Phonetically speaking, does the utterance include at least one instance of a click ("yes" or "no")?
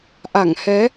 no